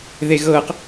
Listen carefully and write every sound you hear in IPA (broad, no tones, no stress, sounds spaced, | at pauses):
ð e ɣ ɤ q